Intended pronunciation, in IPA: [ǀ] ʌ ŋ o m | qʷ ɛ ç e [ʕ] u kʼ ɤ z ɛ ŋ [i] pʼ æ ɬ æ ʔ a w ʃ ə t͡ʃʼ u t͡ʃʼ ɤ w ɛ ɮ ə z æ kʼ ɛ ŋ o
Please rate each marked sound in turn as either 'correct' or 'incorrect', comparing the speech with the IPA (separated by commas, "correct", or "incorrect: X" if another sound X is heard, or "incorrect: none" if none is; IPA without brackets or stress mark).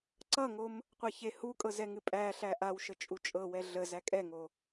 correct, incorrect: h, incorrect: ɨ